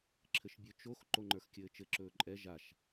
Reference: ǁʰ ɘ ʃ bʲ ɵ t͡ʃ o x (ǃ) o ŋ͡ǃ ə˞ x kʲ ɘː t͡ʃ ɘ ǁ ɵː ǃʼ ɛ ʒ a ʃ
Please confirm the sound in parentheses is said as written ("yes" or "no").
yes